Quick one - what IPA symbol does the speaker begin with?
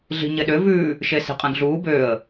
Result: ɮ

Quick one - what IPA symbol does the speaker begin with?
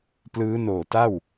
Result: p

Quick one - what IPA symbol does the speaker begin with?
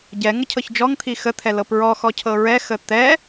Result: ɟ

